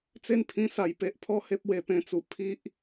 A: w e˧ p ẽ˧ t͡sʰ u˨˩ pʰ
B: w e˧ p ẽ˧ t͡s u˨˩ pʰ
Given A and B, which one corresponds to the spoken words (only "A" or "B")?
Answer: B